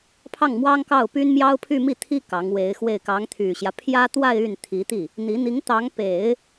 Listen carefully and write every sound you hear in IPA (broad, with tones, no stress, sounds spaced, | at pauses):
pʰ ɑ˥˩ ŋ m w ɑ˥ ŋ k ɑ˥˩ ʊ̯ p y˥ n m j ɑ˥ ʊ̯ pʰ y˥˧ m i˥˩ t̪ʰ i˥ k ɑ˧˥ ŋ w e˧˥ ɪ̯ x w e˥˩ ɪ̯ k ɑ˧˥ ŋ t̪ʰ y˨˩ ɕ j ä˦ pʰ j ä˥ t̪ w a˥˧ ɪ̯ y˥˩ n t̪ʰ i˧˥ t̪ i˥˩ | n̪ i˧˥ n̪ i˧˥ ŋ t̪ ɑ˧˥ ŋ p e˨˩˦ ɪ̯